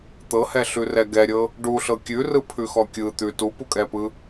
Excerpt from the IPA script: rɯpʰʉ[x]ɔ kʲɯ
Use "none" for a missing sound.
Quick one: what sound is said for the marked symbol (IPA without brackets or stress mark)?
x